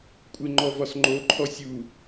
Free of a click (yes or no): no